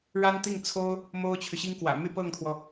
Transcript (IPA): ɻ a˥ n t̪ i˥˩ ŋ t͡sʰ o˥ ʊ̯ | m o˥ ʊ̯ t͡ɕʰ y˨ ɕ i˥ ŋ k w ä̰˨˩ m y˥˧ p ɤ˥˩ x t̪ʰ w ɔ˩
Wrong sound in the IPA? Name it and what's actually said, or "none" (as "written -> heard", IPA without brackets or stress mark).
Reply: x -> ŋ